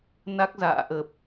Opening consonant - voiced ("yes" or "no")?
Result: yes